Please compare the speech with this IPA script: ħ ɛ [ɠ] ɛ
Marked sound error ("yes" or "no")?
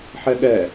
no